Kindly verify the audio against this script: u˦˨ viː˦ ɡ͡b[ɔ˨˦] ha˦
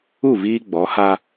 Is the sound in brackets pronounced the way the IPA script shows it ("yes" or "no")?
yes